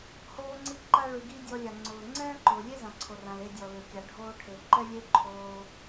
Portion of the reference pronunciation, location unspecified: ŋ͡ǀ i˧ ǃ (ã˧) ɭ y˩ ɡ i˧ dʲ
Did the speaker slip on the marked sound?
yes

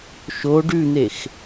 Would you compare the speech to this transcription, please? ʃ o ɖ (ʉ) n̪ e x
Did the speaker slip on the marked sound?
no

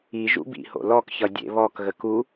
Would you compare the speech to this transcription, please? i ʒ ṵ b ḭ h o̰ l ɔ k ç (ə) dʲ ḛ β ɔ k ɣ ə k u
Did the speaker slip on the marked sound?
yes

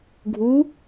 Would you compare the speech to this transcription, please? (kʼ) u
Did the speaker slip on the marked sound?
yes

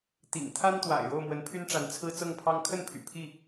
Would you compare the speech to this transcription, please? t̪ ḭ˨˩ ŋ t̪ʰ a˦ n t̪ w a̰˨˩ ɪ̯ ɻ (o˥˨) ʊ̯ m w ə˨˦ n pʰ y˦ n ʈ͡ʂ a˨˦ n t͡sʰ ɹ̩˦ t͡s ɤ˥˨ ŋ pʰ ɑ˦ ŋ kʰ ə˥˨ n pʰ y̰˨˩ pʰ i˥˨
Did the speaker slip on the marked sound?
no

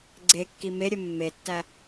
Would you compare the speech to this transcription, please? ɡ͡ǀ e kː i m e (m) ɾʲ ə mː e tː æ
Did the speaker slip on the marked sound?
yes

